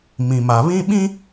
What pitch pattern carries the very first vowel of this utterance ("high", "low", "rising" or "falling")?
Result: low